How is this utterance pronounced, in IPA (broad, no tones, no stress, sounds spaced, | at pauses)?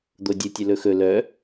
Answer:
d̪ o dʲ ɯ tʲ ɵ l ɵ x ɵ l œ